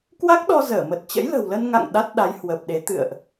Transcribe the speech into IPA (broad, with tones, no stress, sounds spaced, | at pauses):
k w a˦˥ k̚ ɗ ɔ˧ z əː˧˩ m ə˨˩ t̚ t͡ɕ ə̰˧˥ j l ə̤˨˩ w l ə˧ n ŋ a̰˧˨ ŋ ɗ a˦˥ t̚ ɗ a˨˦ j h w əː˨˩ p̚ ɗ e˨˦ t̪ ɨ̰˧˨ ə̯ ʔ